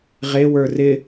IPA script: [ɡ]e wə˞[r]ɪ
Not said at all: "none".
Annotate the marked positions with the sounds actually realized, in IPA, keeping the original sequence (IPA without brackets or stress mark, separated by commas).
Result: ʁ, r